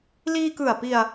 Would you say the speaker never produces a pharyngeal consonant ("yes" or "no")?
yes